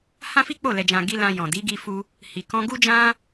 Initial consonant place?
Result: glottal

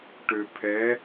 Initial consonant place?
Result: retroflex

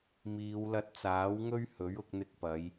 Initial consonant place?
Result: labial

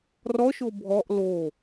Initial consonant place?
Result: alveolar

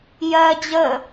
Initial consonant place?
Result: palatal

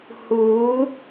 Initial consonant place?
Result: glottal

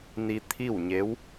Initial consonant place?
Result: alveolar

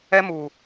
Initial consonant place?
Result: labial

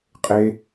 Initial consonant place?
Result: uvular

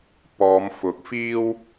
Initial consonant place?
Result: labial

